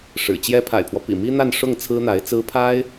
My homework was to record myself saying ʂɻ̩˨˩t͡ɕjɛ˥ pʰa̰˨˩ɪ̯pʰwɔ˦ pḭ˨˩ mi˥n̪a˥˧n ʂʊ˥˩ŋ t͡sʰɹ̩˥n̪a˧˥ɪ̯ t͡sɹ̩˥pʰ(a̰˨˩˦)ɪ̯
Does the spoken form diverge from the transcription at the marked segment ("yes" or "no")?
yes